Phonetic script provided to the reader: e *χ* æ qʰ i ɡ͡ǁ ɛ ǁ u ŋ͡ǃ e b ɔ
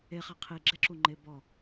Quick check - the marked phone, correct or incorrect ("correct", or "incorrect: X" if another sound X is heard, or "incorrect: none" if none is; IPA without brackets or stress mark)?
correct